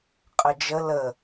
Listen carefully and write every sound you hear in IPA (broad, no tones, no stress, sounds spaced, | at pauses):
qʼ ə d͡ʒ ə l ə